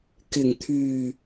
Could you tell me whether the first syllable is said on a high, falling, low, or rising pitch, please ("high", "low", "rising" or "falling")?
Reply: low